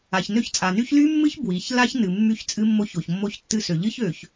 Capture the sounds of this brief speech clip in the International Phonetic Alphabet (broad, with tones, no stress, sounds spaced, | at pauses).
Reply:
a˨ ç n ø˦ ç t͡sʼ a˨ n y˦ ç l y˦ mː ɨ˦ ç b w i˨ ç l a˦ ç n ɨ˨ mː y˦ ç t͡sʼ ɨ˦ mː o˦ ç o˨ ç mː o˦ ç tː ɨ˦ s ø˨ ʎ ɨ˦ ç ø˨ ç